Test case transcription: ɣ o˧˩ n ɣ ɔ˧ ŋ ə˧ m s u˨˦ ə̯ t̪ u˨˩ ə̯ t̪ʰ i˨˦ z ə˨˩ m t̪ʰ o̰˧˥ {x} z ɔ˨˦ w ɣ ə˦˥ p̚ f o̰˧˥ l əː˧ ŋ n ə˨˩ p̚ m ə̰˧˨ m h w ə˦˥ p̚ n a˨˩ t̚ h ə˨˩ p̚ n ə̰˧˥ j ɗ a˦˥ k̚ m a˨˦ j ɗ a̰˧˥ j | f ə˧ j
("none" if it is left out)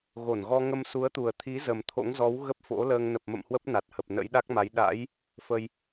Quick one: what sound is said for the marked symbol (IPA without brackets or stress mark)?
ŋ